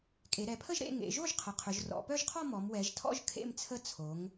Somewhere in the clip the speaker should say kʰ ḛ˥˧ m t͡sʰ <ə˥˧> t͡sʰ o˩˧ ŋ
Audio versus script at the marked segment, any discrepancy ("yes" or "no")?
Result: no